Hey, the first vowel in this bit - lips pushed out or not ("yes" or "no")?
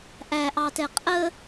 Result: no